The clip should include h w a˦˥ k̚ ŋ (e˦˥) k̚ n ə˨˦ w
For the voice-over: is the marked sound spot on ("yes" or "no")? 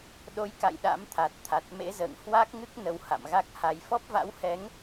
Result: no